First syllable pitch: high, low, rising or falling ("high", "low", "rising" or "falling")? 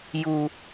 low